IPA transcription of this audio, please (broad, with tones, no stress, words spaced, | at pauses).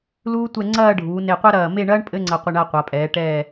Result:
luː˥tʷɛ˥˧ ŋ͡ǀɐː˥˧ɖʱuː˩˧ ne˧˩qʷɐ˥ɾɐː˧˩ me˥˧ɳɐː˥ɳ pʼɘ˥ŋ͡ǀɐ˧qʷɘ˧ɳ a˥˧qʷa˩˧pʼɛː˩˧ ʈɛː˧˩